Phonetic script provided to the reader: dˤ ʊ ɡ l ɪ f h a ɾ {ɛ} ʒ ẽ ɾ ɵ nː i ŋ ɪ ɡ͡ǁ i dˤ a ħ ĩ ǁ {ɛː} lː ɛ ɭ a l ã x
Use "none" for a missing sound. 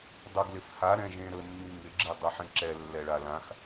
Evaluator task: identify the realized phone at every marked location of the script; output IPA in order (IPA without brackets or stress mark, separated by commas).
ɛ̃, ɛ